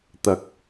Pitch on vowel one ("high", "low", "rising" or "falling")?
low